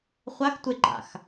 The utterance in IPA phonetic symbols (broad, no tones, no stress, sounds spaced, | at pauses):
χʷ a x tʷ e ɡ͡ǃ a̰ x